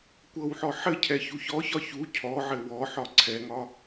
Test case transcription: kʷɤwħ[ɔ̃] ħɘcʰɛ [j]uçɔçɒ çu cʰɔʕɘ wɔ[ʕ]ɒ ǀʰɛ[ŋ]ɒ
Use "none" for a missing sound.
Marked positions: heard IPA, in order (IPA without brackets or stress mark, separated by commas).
ɔ, ç, ħ, ŋ